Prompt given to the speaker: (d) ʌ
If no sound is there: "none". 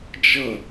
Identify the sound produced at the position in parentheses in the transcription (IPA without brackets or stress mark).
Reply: d͡ʒ